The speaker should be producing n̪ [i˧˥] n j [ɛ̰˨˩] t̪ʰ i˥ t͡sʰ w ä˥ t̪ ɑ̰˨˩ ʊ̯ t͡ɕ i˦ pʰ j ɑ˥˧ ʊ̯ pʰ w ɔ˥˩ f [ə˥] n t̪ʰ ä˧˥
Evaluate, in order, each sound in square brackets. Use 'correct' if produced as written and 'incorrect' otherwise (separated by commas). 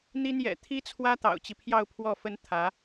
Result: incorrect, correct, correct